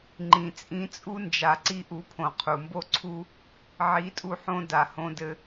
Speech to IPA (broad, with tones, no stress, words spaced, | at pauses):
ŋ͡ǃĩ˨t͡sʼĩ˧t͡sʼu˦ nd͡ʒa˨ǀi˧ ʔu˧pʰõ˨ qʰu˨mbo˦ ǀʰu˦ | ʕi˨˦tʼu˧ħõ˧ da˨hõ˧dɘ˧